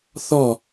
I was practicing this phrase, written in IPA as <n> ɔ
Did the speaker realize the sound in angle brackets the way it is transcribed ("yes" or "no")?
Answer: no